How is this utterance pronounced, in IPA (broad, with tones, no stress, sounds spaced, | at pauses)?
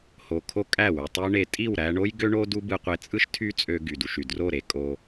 h o˨ kʰ o˦ kʼ æ˦˨ w y˨ tˤ ø˦ ɳ e˧ tʼ i˦˨ w ɾ æ˧ ɳ o˦ j ɡ ø˦ ɳ o˦ d u˦ b ɯ˧ qʷ e˧ t͡sʼ ɯ˦ ʃ tʰ y˦ t͡sʼ ø˧ ɡ y˨ d u˧ ʃ y˨ d r o˦˨ ɾ e˧ kʼ o˧